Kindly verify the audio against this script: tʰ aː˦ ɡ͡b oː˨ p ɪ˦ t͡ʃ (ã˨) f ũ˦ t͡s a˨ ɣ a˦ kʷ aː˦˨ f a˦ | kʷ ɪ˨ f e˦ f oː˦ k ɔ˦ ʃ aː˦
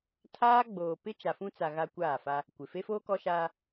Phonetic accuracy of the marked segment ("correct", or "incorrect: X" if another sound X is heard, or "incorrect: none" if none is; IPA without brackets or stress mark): incorrect: a˨